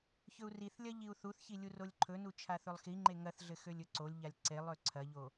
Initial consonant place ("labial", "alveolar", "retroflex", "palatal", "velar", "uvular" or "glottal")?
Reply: palatal